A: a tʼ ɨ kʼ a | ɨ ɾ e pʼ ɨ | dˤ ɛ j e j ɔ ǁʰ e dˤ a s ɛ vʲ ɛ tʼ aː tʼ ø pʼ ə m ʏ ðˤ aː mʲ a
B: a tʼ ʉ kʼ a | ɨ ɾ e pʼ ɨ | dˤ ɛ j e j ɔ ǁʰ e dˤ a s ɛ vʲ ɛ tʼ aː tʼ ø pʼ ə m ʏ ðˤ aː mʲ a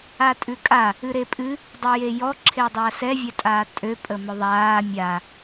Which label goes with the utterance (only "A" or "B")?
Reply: B